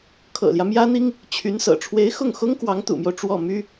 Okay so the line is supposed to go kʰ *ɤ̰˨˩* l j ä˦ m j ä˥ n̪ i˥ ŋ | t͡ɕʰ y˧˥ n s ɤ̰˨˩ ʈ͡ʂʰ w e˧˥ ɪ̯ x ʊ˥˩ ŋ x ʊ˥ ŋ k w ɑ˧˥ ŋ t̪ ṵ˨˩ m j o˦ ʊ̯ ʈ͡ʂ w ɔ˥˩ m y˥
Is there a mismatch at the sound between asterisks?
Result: no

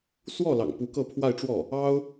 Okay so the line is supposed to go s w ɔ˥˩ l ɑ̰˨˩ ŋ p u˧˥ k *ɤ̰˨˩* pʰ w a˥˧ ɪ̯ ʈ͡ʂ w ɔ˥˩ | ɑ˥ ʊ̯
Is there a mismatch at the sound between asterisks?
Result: yes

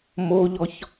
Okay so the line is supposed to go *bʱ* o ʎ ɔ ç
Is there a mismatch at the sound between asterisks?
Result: yes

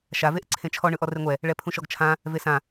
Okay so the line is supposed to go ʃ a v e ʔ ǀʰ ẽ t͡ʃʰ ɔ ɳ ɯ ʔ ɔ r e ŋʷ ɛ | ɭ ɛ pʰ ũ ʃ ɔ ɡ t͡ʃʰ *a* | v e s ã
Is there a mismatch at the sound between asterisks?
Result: yes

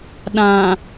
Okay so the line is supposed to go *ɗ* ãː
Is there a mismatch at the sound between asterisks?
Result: no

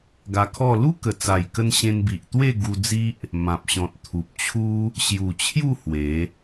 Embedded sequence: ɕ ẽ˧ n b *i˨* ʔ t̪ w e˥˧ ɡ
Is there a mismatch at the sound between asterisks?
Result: no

